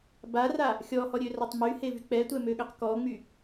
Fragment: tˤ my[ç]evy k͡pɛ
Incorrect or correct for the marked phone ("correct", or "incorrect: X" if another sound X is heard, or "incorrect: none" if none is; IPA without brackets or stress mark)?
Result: incorrect: h